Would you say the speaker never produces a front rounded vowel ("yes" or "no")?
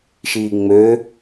no